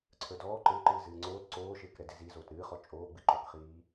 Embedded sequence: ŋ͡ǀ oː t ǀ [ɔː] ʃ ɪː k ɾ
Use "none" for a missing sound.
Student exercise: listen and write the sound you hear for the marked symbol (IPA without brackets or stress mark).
oː